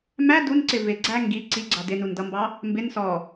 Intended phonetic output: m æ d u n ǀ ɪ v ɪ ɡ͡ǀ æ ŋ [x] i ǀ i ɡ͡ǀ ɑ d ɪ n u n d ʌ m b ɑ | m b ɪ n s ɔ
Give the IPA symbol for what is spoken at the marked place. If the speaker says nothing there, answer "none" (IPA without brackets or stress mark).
ɡ